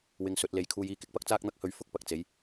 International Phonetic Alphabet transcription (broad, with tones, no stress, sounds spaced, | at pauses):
w ɪ˧ ŋ s ɵ˨˥ t̚ l e˨˥ j kʰ uː˧ j iː˨˧ k ɪ˧ k̚ p ɐ˥ k̚ t͡s aː˥ k̚ n̪ ɐ˥ k̚ h ɵ˧ ɥ f ʊ˥ k̚ p ɐ˨ k̚ t͡s e˨˥ j